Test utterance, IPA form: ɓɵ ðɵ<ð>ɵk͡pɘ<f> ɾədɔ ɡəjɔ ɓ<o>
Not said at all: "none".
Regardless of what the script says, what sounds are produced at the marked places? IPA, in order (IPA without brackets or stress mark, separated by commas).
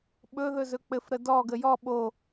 z, f, o